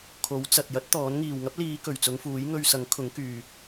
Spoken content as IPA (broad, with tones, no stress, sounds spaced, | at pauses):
kʰ o˨˥ w t͡s ɐ˨ t̚ j ɐ˥ t̚ t̪ ɔː˨˥ n ŋ iː˨˩ w ŋ ɐ˥ p̚ l iː˨˧ k ɵ˨˩ ɥ t͡s ʊ˨˧ ŋ f uː˨˥ j ŋ ɵ˧ ɥ s ɐ˨˥ ŋ kʰ ʊ˨˥ ŋ k yː˨